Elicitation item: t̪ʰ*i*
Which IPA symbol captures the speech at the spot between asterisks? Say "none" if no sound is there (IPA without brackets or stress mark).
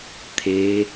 e